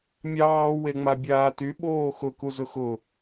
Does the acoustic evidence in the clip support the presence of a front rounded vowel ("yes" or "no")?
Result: yes